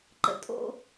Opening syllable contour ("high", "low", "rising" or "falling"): high